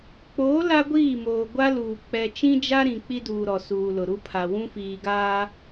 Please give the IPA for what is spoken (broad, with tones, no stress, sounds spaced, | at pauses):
k͡p oː˨˦ l a˦ ɡʷ iː˦˨ m oː˨ ɡʷ a˦ l uː˨ k͡p ɛ˨ t͡ʃ ĩ˦ d͡ʒ a˦ ɾ ĩ˨ k͡p i˦ d uː˨ ɾ ɔ˨ s uː˨ l ʊ˨ ɾ u˦ pʰ a˨ w ũ˦ f iː˨ ɡ aː˦